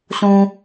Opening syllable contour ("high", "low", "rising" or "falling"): low